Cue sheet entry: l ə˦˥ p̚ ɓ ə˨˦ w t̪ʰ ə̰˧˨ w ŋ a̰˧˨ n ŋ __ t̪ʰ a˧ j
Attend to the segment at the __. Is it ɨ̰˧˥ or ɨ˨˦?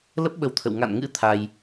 ɨ̰˧˥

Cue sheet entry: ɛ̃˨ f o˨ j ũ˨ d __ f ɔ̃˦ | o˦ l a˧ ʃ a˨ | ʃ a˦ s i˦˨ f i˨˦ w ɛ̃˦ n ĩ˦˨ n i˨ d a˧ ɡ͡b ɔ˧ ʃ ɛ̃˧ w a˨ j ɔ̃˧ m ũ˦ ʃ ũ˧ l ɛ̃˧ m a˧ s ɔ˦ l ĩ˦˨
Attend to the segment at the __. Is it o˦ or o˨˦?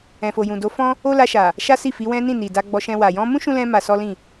o˨˦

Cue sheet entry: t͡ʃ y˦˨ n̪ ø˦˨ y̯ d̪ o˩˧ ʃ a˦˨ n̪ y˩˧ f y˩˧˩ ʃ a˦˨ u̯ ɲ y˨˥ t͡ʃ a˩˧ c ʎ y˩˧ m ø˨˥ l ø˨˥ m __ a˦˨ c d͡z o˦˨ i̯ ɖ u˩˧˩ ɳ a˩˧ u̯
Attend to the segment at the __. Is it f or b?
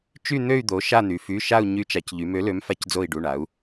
f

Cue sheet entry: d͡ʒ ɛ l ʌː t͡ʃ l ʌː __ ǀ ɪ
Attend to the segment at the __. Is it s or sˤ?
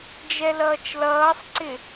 sˤ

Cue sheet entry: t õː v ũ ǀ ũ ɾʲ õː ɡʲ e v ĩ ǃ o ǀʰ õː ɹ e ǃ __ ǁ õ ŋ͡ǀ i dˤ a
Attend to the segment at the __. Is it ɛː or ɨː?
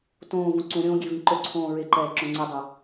ɛː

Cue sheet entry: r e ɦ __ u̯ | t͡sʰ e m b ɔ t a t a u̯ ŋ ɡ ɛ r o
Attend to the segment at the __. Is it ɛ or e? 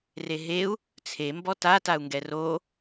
e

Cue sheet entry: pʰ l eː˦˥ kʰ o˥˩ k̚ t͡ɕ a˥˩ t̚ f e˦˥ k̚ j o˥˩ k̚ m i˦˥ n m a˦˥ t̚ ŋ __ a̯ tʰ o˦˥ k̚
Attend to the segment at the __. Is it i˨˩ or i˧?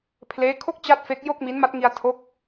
i˧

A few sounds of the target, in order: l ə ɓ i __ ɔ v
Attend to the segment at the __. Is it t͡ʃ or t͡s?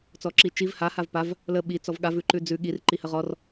t͡s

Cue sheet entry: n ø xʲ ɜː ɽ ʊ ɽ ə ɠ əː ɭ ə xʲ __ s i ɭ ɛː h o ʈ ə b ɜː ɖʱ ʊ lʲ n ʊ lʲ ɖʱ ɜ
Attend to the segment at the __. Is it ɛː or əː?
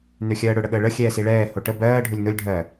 ɛː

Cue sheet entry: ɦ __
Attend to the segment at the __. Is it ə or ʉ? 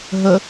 ə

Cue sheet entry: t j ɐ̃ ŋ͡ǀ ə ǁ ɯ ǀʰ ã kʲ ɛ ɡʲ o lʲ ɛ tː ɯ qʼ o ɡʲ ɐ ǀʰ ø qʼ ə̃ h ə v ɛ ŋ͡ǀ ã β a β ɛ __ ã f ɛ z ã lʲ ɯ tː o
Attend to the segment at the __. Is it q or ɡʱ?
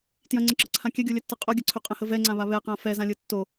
q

